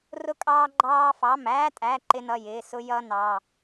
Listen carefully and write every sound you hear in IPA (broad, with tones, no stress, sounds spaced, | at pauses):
r ʊ˦ kʼ ɑː˦ ɡ͡ǃ ɑː˦ f ɑ˩˧˩ m æː˦ tʼ æ˩˧˩ ǃ ɪ˦ n ʌ˩˧˩ j ɪː˩˧˩ s ʊ˦ j ʌː˦ n ɑ˩˧˩